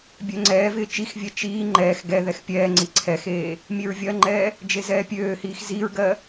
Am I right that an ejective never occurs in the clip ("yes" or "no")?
yes